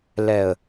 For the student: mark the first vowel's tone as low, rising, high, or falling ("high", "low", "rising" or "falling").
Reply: low